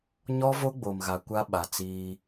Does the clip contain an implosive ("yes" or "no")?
yes